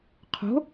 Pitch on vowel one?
rising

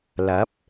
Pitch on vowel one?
rising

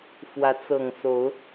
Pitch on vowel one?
rising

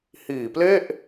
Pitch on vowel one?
low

